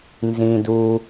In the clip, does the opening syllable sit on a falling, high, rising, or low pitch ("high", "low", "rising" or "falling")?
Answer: high